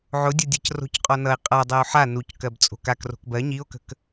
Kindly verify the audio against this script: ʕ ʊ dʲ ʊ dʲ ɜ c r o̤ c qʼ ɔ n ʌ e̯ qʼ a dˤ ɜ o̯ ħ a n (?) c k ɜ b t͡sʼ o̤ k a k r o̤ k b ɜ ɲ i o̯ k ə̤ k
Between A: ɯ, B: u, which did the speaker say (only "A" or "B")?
B